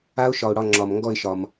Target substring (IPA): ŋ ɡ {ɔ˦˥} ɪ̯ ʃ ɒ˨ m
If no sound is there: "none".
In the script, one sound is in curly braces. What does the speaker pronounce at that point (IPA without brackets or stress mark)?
ɔ˥˧